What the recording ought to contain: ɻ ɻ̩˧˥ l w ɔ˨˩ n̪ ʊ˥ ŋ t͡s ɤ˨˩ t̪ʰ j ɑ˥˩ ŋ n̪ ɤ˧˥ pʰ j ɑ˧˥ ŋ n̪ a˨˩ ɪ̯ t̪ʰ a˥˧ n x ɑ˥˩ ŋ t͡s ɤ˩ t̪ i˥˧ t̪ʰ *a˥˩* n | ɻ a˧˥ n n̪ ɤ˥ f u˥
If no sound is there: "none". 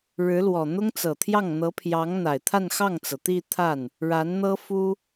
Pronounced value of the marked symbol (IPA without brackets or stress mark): a˥˩